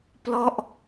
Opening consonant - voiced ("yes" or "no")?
no